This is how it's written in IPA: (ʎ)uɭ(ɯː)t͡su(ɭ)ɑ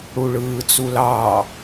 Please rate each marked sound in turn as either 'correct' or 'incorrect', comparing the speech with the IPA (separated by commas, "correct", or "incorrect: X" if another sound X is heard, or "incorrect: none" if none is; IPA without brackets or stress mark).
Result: incorrect: ɽ, correct, incorrect: l